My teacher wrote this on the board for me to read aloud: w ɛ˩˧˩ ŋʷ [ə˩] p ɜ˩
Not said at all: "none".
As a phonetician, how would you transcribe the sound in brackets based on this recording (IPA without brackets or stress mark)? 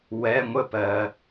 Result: ə˥˩